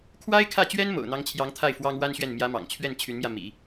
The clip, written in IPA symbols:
kʰwa˥ɪ̯kʰä˥˩t͡ɕɥɛ˥n mo̰˨˩ʊ̯n̪ɑ˧˥ŋt͡ɕʰjɑ˧˥ŋ t̪ʰa˥˩ɪ̯ fwɑ˥ŋwa˥nɕɥɛ˥˩n mjä˧˥ mɑ̰˨˩ŋt͡ɕʰɥɛ˥˩n t͡ɕʰy˧˥nmjä˧mḭ˨˩˦

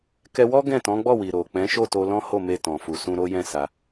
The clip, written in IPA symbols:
kɛ˧wɔ˦ ɡɛ̃˦˨tɔ̃˨˦ɡ͡bɔ˦˨wi˨ ɾo˨k͡pɛ̃˨˦ ʃo˦˨to˧ lɔ̃˦ho˦˨ me˧tɔ̃˨fu˨sũ˧ ɾo˦ jɛ̃˦˨ sa˧

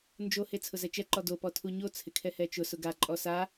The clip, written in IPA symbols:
nd͡ʒohe t͡sʰʊzɛt͡ʃɛǃɔ dopɔ tʰuɲo t͡sʰɪkʰɛhɛt͡ʃʊ sʊɡaǃʼɔ sa

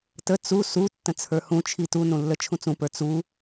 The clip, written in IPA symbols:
tə t͡su su tːə̃t͡sʰə˞hũt͡ʃʰi tunũ lːət͡ʃʰũt͡sũpə˞ t͡su

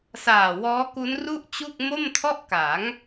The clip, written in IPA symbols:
saː˨˩wɔː˦˥ ku˦˥nru˥˩ʔt͡ɕu˥˩k̚ mo˥˩mtʰɔ˥˩ʔka˩˦ŋ

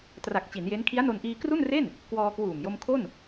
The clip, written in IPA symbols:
tra˨˩k̚t͡ɕi˩˦nje˦˥n kʰi˦˥a̯no˧nʔiː˧ kru˥˩nre˥˩n | kwɔː˧kwuː˨˩m jo˧mkʰo˥˩n

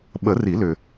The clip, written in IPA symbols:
ɓə˨˩˦ri˨˩˦lʏ˨

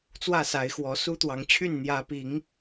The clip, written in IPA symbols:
t͡swä˥˨sa˨˦ɪ̯xwɔ˨˦ su˦t̪wɑ˨˦ŋt͡ɕʰy˥˨n n̪jä˨˦pi˨˦ŋ

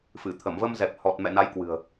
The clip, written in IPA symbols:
fɨ˧˩t̪ʰə˧˩m və˧mzɛ˨˩p̚hɔ˨˩t̚ mɛ̰˧˨na˨˦jkwɨ̤˨˩ə̯

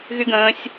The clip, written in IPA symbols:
ɣyɡə̃ːsʲ

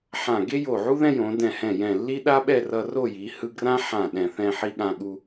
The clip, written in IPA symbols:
ħã˧˩ ɡe˥jo˧˩ʕu˥ ðɛ̃˥jõ˩˧ dɛ̃˧˩hɛ̃˧˩jɛ̃˧˩lːi˥ ɗa˥ɓɛ˥˧rʌ˧ ro˥˧ji˩˧ hɯ˧ɡrã˥ ħã˧˩ ɗɛ̃˧˩θɛ̃˥˧ħi˥ ɠã˧ɠu˧

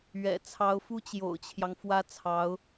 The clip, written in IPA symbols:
ɥɛ̰˨˩ t͡sʰɑ˧˥ʊ̯fu˥t͡ɕjo̰˨˩ʊ̯t͡ɕʰjɑ˦ŋ fwä˥ t͡sʰɑ˧˥ʊ̯

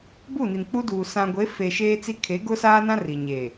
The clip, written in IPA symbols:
bu˦˨ni˨nk͡pu˦duː˨ sã˨ɡʷe˨˦fe˨ ʃeː˦t͡si˦ kʰe˨˦ɡʊ˦saː˦nã˦ ri˨ɲeː˨

